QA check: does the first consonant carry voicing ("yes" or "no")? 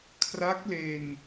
no